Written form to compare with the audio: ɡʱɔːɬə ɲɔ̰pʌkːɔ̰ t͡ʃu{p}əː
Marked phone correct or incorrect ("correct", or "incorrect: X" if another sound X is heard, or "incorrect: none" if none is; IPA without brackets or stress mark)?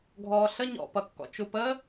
correct